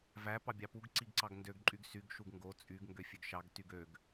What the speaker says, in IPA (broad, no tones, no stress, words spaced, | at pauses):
væ pɑbʲɑpuɡ ǀiɡǀɑɡndøɡ ǃʼyɡsyɡ ʃuɡŋɡo t͡sʼyɡ ŋɡøfʲøɡʃɑɡ tyɡøɡ